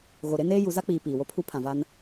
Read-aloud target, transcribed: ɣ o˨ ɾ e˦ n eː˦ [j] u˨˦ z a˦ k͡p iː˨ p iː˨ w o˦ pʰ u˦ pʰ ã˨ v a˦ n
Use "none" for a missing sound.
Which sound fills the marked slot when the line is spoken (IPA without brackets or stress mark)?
j